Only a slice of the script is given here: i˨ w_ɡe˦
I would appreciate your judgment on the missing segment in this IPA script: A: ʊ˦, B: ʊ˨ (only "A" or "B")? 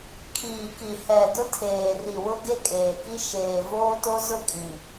A